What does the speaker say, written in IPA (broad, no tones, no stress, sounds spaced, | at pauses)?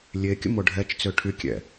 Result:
lʲ e kʲ ə̰ m o ɖʱ ɛ t͡ʃ t͡s ø ʈʰ y kʲ ɛ̰